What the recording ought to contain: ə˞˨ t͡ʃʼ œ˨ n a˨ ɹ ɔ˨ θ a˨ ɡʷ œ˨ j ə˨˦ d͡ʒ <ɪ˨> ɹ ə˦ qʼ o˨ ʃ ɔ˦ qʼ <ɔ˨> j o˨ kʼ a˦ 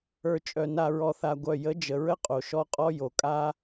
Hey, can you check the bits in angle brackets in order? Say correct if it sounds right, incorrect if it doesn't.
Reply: incorrect: ə˨, incorrect: ɔ˦

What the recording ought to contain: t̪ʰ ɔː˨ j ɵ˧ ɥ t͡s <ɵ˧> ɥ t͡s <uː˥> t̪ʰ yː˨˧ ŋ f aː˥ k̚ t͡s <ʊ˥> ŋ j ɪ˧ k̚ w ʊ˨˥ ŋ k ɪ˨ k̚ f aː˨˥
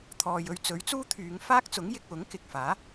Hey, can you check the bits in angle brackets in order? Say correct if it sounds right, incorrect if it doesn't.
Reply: incorrect: ɵ˨˥, correct, incorrect: ʊ˨˥

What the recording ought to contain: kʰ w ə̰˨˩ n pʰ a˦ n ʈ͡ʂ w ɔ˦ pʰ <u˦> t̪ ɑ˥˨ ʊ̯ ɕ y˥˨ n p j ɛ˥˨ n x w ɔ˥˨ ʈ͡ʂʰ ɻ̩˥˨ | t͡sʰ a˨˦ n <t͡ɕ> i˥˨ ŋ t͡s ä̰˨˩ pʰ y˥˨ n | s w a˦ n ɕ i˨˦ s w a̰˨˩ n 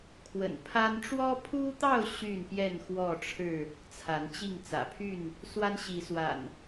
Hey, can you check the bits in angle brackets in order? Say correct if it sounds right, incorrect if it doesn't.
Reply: correct, correct

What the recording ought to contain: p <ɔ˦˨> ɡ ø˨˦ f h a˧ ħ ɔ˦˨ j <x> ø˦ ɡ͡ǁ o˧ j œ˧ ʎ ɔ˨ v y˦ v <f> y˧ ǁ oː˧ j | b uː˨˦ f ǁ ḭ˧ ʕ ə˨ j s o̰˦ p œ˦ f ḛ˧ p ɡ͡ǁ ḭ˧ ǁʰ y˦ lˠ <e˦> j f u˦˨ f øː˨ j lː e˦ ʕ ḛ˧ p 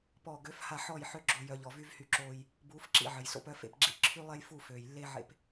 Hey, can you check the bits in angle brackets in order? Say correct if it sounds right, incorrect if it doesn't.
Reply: correct, incorrect: ħ, incorrect: h, correct

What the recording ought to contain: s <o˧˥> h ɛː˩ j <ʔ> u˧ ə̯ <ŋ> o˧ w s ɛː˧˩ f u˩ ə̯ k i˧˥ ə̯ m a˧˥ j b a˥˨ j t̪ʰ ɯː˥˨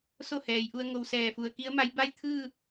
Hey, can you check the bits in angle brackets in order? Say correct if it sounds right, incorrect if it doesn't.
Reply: incorrect: o˥˨, correct, correct

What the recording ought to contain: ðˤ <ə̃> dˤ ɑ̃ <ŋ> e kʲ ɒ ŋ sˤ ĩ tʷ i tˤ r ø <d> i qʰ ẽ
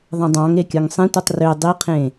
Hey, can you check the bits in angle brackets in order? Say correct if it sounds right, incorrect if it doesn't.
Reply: correct, correct, incorrect: dˤ

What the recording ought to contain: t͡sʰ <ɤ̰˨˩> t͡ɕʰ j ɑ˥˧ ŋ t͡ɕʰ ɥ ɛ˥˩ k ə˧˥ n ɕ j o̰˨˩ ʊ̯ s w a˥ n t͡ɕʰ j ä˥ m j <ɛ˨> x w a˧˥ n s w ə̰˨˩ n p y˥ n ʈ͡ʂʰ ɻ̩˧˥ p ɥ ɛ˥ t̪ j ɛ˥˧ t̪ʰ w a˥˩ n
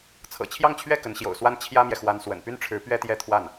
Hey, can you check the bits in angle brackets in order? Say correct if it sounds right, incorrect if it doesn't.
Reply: correct, correct

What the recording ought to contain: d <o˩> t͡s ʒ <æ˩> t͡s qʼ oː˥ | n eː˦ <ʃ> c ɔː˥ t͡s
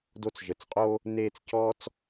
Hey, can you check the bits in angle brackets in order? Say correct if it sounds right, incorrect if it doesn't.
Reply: incorrect: o˦, incorrect: ə˩, incorrect: t͡s

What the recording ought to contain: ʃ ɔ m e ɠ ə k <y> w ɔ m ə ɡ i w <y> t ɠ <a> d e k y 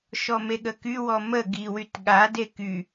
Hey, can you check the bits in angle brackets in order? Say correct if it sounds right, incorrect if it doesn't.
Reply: correct, correct, correct

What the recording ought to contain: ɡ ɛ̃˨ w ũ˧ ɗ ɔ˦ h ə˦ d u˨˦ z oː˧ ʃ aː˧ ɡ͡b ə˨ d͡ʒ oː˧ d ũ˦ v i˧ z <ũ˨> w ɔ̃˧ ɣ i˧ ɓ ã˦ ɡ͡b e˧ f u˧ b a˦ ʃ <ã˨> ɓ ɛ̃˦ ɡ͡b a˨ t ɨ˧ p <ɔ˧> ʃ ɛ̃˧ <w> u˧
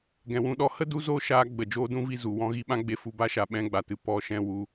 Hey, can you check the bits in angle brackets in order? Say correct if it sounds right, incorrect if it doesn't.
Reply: incorrect: u˨, incorrect: a˨, correct, correct

